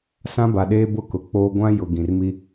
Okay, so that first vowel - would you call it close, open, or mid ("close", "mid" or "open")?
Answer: open